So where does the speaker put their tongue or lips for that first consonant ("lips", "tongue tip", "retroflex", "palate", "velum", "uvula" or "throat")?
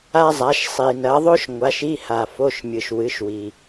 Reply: tongue tip